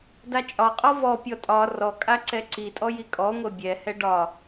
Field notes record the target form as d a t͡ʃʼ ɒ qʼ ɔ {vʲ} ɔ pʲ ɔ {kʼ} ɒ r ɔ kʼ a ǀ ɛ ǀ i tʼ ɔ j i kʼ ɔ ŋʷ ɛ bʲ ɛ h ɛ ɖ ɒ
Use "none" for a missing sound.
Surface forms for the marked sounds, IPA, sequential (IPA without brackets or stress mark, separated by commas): v, tʼ